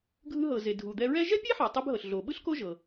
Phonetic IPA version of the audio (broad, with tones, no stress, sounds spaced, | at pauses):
ɡʱ ɯ˧ ɦ ɤ˩ z e˩ dʱ u˩ d̪ ɛ˧ ɹ ɛ˥ ʒ ɛ˥ pʲ e˥ ħ ɛ˩ tˤ e˧ b ɦ ɤ˩ ɬ ɮ o˩ ɓ ɯ˥ ɬ k o˥ ʒ ɤ˩